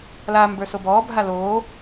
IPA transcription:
l aː m b ə˞ s o b ɔː bʱ a l oː

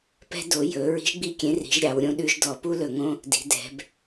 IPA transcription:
p ɛ̤˦ d o˩˧ j ɵ˩˧ ɹ i̤˨˥ ʒ ɡ͡b i˦˨ kʲ ẽ˨˥ r i̤˩˧ ʒ ɾʲ ɑ˩˧ w ɾʲ õ˦ ɗ ʉ˦ ʒ d ɔ˧˩˧ p u˦ l ɵ˧˩˧ ŋ õ˦ | d i̤˩˧ d ɛ̤˩˧ b

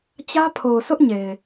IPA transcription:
t͡ɕ ä˦ pʰ o˨ ʊ̯ s ʊ˦ ʔ ɲ e˨ ɪ̯

